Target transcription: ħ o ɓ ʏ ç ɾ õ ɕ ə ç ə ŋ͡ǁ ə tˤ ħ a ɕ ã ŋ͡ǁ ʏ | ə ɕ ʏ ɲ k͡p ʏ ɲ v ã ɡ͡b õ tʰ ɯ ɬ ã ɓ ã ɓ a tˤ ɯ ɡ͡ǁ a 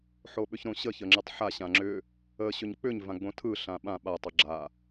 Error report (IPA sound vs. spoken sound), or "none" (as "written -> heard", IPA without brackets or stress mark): none